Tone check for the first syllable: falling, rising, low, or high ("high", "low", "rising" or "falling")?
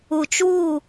low